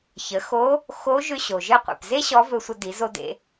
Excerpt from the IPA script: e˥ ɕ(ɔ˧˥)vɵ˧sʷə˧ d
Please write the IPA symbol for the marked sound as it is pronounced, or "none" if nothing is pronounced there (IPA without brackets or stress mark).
ɔ˧˥